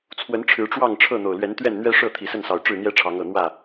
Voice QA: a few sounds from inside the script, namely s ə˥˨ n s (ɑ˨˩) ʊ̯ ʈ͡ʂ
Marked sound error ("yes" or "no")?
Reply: no